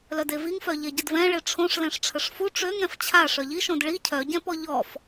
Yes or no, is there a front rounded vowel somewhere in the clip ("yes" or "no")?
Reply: yes